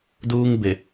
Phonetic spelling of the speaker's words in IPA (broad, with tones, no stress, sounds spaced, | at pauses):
d uː˦ ŋ b ɪ˨